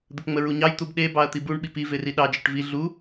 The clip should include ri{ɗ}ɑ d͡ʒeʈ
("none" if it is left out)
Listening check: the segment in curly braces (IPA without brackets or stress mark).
ɗ